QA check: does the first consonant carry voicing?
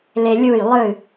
yes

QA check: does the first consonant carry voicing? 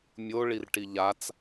yes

